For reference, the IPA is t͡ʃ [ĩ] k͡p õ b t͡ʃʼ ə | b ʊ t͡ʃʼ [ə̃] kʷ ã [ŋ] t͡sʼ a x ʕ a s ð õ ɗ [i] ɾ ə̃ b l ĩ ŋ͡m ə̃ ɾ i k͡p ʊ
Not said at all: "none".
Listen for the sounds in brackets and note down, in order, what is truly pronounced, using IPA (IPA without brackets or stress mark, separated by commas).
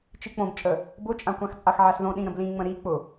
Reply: i, ã, x, ĩ